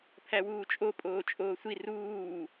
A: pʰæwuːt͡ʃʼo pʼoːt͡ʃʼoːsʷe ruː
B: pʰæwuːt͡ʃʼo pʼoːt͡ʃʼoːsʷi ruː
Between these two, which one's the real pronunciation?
B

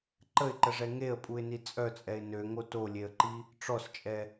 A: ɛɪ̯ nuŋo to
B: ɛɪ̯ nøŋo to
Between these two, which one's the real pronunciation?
B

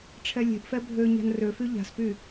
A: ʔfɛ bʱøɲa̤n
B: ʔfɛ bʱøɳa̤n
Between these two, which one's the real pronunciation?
A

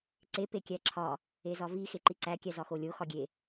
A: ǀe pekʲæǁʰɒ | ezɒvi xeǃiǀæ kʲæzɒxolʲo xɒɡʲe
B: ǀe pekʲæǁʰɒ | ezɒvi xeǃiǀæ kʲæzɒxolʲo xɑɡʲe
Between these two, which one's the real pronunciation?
A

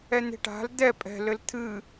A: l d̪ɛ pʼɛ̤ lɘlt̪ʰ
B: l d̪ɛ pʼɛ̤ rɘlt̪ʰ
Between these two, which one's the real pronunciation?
A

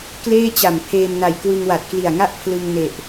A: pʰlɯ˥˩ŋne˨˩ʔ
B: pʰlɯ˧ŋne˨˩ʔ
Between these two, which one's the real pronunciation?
B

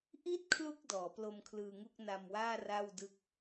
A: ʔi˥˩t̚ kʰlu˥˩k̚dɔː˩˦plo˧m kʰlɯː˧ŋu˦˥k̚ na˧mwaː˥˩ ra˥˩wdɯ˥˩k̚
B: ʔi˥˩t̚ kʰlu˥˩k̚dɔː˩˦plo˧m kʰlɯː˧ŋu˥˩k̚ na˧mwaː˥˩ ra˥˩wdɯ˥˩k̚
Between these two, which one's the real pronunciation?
B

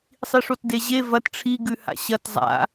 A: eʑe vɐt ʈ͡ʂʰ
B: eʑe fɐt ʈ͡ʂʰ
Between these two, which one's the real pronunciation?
A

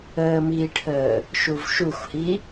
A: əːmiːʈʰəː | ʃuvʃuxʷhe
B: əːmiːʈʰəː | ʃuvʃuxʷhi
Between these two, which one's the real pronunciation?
B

